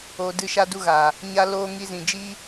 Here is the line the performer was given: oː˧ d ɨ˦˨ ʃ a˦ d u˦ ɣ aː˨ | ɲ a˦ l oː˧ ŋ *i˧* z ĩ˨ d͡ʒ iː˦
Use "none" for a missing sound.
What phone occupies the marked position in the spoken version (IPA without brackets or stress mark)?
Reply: i˧